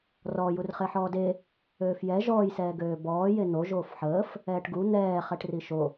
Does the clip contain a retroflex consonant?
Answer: yes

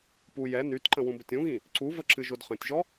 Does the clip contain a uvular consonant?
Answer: yes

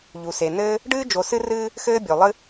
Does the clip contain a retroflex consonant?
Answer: yes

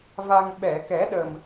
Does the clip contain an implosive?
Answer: yes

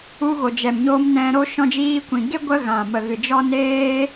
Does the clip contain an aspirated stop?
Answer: no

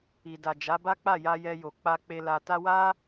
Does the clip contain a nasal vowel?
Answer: no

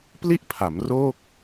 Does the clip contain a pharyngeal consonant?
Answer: no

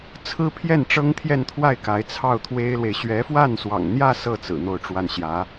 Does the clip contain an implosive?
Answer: no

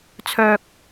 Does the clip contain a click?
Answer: no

